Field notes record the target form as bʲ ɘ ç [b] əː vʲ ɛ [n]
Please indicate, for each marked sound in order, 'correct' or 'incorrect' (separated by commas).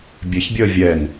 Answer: incorrect, correct